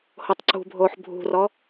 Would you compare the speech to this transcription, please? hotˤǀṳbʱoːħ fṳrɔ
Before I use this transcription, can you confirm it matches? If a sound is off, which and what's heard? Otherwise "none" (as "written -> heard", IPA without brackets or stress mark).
f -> bʱ